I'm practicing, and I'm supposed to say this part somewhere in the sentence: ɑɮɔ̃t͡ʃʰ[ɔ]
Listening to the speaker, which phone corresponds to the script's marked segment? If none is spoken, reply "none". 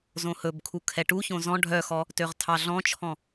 ɔ̃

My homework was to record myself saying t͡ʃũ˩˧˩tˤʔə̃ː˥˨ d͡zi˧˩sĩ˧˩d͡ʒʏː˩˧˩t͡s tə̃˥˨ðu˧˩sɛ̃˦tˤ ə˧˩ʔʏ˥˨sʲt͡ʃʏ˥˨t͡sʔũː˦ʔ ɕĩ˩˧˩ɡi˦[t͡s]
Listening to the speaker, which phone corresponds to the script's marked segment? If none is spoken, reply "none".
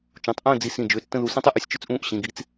t͡s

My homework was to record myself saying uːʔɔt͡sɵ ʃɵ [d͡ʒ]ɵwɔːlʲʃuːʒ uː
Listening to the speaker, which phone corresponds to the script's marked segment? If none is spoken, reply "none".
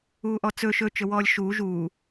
t͡ʃ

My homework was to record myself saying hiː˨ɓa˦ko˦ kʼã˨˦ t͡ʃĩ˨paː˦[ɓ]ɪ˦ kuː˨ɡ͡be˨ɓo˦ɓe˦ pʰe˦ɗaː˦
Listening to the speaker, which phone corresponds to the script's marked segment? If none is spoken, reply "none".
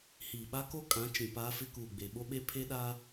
f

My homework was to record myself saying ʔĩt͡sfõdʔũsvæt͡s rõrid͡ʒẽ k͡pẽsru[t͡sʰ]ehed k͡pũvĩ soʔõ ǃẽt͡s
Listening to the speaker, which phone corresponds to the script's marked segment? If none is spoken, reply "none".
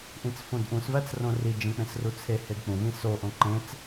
t͡sʰ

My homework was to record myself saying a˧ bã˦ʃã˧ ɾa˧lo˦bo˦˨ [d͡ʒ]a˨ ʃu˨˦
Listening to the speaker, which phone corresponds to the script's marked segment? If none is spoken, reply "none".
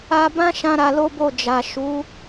d͡ʒ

